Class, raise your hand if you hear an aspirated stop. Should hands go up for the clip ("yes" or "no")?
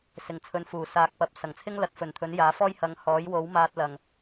yes